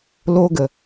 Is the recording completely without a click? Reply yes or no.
yes